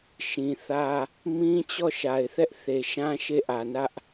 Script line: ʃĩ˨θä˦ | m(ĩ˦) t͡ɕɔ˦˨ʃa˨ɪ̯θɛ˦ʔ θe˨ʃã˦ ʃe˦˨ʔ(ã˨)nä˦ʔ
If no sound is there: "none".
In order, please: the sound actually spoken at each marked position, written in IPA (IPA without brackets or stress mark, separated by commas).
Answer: ĩ˦, ä˨